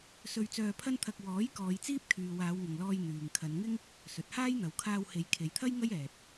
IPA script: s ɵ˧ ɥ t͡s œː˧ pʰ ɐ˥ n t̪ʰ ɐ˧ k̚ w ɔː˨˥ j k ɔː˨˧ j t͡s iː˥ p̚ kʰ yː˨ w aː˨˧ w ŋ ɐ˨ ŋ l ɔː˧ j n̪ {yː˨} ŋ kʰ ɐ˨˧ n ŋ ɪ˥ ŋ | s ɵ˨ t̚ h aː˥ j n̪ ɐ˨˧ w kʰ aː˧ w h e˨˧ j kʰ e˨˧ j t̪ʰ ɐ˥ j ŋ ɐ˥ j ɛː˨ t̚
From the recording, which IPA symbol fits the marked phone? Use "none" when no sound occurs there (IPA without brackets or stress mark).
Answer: yː˨